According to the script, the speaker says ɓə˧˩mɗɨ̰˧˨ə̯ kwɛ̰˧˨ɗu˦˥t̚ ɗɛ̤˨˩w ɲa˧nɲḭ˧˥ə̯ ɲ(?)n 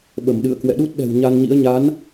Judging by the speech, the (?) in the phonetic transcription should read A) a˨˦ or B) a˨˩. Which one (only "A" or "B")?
A